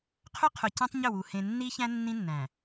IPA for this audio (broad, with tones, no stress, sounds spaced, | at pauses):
qʰ ʏ˦ qʰ ʊ˨ c ẽ˦ tˤ ɲ ʏ˦˨ w u˨ h ẽ˨ nː i˦ ç æ̃˦ nː ĩ˦ nː æ̃˨